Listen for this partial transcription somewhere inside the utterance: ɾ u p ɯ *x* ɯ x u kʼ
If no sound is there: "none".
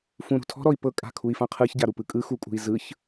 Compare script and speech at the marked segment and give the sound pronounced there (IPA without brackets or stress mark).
kʼ